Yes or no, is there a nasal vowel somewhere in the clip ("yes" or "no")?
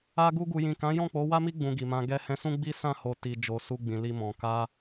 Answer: yes